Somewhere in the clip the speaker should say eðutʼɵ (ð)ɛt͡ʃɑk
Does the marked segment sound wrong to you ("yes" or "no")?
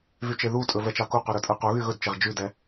yes